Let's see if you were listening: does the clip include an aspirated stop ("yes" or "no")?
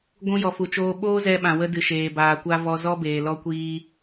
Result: no